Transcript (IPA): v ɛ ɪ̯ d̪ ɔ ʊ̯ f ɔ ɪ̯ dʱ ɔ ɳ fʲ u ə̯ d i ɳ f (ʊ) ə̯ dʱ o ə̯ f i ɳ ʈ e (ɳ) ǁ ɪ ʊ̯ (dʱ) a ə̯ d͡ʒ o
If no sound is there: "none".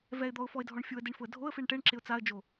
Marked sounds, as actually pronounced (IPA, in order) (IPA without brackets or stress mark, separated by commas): ʊ, ɳ, t͡s